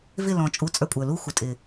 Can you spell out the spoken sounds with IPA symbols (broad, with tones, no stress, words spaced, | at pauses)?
vɪ˦˨lɔ̃˨t͡ʃʼu˨˦ t͡sʼə˞˧kʷʼə˞˨lu˦ xʷɪ˨tʼɪ˨